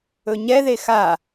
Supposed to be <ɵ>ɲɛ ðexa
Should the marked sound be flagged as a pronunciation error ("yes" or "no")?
no